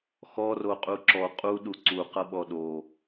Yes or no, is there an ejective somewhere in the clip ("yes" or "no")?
yes